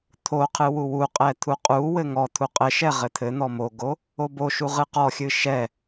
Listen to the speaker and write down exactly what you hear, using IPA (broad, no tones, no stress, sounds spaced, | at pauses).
t̪ʰ o qʰ ɨ w u w u qʼ ɛ t̪ʰ u qʼ u w ɘ ŋ ɔ t̪ʰ u qʼ ɘ ʃ ɛ ʁ ɘ t̪ʰ ɘ n̪ ɔ m o ɡ o | o b o ʃ u ʁ ɨ q ɔ xʲ ɨ ʃ ɛ